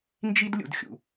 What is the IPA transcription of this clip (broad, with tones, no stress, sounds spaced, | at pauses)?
n d͡ʒ i˦ d lʲ ṵ˨ d xʲ ṵ˨